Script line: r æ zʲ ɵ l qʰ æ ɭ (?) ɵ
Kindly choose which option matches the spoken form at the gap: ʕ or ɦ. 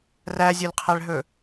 ɦ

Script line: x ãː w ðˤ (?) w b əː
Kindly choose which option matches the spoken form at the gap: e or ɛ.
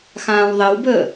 ɛ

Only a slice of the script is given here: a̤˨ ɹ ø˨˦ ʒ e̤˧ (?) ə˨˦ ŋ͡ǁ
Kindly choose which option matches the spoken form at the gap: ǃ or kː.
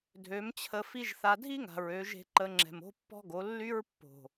ǃ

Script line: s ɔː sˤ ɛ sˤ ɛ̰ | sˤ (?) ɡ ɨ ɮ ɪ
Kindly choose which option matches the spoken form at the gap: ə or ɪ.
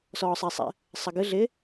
ə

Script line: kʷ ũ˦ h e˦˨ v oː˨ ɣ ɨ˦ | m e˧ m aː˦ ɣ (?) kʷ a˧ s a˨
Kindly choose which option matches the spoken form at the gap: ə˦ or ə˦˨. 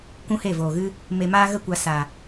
ə˦˨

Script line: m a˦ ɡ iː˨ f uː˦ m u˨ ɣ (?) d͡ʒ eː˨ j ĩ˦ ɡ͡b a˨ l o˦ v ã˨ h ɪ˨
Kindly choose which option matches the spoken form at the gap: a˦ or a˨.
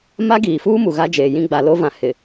a˦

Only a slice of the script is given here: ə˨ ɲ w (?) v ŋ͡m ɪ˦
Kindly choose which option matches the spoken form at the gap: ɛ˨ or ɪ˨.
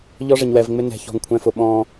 ɛ˨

